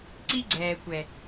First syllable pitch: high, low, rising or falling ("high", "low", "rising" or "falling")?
high